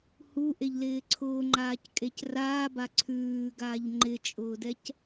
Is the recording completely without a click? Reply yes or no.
no